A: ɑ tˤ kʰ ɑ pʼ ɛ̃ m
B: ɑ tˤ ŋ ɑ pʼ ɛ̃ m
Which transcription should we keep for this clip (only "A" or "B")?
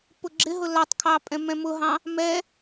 A